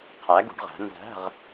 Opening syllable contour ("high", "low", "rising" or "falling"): rising